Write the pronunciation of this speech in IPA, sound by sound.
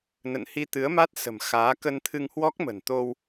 n ə̰˧˨ n h i˧ t̪ ɨ˨˦ ə̯ m a˦˥ t̚ s ə̤˨˩ m x aː˨˦ k ə˧ n t̪ʰ ɨ˧ ŋ h w ɔ˦˥ k̚ m ə̤˨˩ n t̪ o˧ w

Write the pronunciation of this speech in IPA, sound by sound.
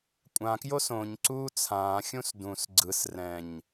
kʷʼ ã k j o s õ ɲ ǀ uː t͡sʰ ãː xʲ ũ s d ũ s ɡ͡ǀ ɯ s r ɛ̃ ɲ

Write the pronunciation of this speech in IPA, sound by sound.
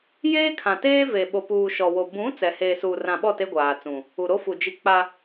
j eː˦ kʰ ã˨ t eː˦ v e˨ ɓ o˨ p uː˨ ʃ ɔ˨ w o˨ b ũ˨˦ t͡s ɛ˨ h eː˨ s uː˨ r ã˨ ɓ ɔ˦˨ t e˦ ɡʷ aː˨ t͡s ũ˨ | u˨ ɾ o˦ f u˨ d͡ʒ i˦ k͡p a˦

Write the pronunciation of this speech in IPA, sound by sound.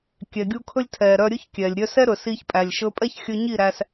kʲ ɛ˨ ɡʲ u˧ kʰ ɵ˦ lʲ tʰ ɛ˨ ɾ œ˧ ɾʲ ɵ˦ ç kʲ ɛ˨ lʲ ɾʲ œ˧ s ɛ˦ ɾ ɵ˨ s i˧ ç pʼ æ˨ lʲ ʃ ɵ˧ pʼ ɛ˦ ç xʲ ɵ˧ ɲ i˦˨ ɾ æ˧ s

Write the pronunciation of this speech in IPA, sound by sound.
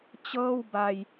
t͡ɕ ɤː˥˩ w b a˧ j

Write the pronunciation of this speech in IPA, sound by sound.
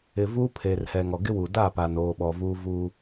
ɪ˨ v uː˦ pʰ eː˨ r h ɛ˨ ŋ ɔ˨ ɡ ɪ˦ w u˨ d a˦˨ p a˨ n oː˨ ɓ ɔ˨ v u˦ v u˦

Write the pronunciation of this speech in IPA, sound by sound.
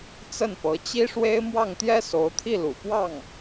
t͡s ə˥˩ n p ɤ˧˥ t͡ɕ i˥ ʂ w e˥ ɪ̯ m w ɑ˥˩ ŋ t̪ j ɛ˥ s o˧˥ ʊ̯ t̪ʰ i˥˩ l ṵ˨˩ p w ɑ˥˩ ŋ

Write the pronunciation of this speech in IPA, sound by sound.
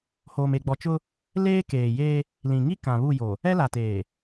h oː˨ m e˨ ɡ͡b ɔ˨ t͡ʃ ʊ˦ | l eː˦ k eː˨ j e˦ | l ĩ˨ ŋ i˦ k ã˨ β u˦˨ j o˨ | ɛ˦ l a˨ t eː˨

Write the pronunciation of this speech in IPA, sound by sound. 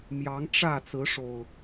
m j ɑ˨˦ ŋ ʈ͡ʂ ä˥˨ t͡s ɹ̩˨˦ ʂ o˨˩ ʊ̯

